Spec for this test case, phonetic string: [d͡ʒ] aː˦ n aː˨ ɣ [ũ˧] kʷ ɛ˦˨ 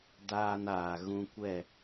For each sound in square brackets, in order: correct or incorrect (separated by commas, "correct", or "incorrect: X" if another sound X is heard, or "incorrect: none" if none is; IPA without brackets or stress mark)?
incorrect: d, correct